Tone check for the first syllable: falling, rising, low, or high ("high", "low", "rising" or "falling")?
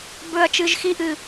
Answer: low